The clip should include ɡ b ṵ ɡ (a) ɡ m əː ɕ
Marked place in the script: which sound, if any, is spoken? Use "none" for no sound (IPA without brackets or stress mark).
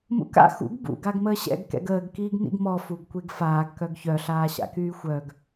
a